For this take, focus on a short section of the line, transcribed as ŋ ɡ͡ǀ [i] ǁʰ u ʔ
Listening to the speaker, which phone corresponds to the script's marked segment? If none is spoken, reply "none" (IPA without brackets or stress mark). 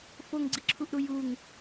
i